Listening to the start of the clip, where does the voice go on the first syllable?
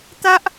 high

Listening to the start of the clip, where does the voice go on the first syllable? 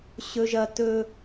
high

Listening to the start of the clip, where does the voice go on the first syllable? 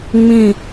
falling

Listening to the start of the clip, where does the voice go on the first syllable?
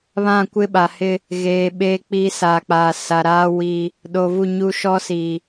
falling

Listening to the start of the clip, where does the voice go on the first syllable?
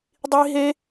high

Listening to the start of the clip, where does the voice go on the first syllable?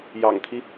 low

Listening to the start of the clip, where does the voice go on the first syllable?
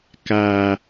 low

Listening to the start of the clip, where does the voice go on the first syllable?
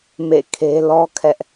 falling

